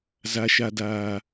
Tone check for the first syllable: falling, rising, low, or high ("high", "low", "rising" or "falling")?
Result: low